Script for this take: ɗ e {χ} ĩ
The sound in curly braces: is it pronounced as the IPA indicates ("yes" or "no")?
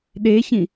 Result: no